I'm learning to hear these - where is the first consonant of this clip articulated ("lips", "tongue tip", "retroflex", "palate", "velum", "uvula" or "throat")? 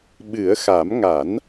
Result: lips